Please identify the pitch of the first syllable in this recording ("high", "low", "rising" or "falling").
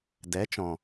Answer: rising